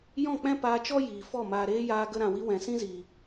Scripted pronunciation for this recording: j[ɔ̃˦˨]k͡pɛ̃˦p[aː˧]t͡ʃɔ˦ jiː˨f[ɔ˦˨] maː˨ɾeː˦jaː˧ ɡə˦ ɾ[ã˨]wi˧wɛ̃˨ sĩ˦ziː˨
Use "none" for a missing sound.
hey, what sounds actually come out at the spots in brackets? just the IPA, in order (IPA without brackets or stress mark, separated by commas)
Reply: ɔ̃˦˨, aː˧, ɔ˦˨, ã˨